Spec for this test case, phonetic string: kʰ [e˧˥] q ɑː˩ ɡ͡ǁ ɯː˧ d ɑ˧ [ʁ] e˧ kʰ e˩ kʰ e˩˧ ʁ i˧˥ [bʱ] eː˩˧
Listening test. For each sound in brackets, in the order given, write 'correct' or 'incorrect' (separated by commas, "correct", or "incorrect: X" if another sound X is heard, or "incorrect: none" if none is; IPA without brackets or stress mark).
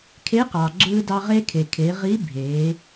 correct, correct, correct